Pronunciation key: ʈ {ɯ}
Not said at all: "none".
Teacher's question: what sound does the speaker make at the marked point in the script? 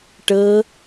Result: ɤ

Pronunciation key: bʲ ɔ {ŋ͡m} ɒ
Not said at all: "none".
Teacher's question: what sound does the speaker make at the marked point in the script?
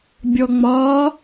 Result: ŋ͡m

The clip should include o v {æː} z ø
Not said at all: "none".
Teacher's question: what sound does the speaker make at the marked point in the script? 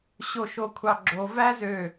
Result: æ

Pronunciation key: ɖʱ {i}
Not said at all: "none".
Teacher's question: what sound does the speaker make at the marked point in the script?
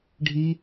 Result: i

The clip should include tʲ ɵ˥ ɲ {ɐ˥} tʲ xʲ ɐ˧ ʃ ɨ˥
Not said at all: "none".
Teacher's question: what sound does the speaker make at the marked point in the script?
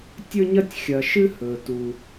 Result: ɐ˥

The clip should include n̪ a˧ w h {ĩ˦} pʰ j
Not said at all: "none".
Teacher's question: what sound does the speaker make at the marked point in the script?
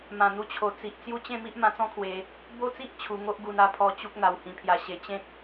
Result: ĩ˧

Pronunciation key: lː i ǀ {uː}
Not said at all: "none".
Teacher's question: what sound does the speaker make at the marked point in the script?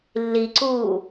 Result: uː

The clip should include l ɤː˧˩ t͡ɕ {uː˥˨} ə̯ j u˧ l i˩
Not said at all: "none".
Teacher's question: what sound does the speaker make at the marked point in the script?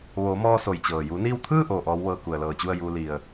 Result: u˥˨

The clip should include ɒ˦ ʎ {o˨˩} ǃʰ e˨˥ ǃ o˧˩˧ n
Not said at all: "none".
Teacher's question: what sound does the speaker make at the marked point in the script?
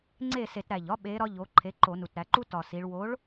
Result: o˩˧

